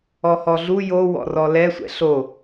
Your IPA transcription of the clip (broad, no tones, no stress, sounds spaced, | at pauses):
ɔ h ɔ ɮ u j o w ɔ̰ r ɔ l ɛ sʷ ɛ̰ ɬ o